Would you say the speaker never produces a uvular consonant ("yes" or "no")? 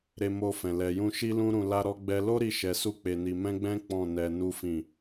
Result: yes